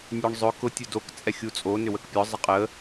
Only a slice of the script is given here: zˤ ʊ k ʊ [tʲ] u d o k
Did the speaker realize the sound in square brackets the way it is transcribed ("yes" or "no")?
yes